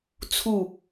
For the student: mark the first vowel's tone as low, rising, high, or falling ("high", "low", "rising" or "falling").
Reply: falling